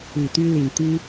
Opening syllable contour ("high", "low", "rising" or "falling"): low